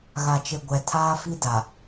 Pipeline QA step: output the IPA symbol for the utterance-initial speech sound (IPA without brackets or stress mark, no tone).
ɣ